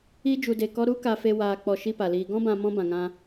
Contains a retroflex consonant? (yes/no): no